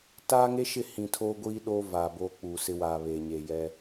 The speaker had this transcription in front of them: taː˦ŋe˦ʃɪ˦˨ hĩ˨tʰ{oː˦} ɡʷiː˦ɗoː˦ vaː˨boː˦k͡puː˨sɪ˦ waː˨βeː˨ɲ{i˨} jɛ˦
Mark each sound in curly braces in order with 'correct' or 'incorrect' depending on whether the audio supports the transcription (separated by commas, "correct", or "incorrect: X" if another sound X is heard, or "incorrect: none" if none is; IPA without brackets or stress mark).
correct, incorrect: e˨